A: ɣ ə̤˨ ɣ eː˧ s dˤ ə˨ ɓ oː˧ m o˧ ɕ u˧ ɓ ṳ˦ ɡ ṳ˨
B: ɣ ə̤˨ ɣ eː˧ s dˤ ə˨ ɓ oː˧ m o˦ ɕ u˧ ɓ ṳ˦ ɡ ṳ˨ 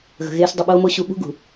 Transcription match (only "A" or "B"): A